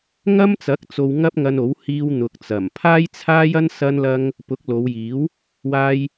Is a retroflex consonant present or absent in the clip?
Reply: absent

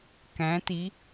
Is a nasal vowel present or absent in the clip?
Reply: present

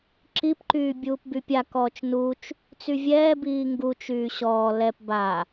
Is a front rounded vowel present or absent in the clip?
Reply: present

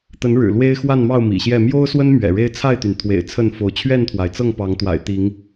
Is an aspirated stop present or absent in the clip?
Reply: present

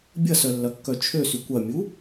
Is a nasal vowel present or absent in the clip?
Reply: absent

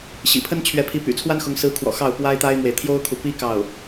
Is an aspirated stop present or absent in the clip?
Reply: present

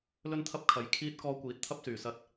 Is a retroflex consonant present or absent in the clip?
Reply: absent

